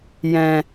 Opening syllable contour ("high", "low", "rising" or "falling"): low